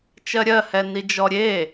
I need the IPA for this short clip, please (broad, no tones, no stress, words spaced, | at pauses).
t͡ʃɜɾʲɜhɛ nid͡ʒɔɾʲe